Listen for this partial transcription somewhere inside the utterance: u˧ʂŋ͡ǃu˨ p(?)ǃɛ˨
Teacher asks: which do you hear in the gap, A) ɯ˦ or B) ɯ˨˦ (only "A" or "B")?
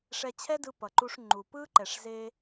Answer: A